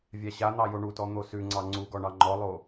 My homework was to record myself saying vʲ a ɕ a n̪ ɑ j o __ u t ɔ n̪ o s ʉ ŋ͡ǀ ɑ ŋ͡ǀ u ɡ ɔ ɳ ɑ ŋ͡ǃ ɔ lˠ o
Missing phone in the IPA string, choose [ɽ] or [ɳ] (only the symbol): ɳ